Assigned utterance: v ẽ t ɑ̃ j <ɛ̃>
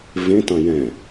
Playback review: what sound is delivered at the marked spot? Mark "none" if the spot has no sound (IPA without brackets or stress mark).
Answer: ɛ̃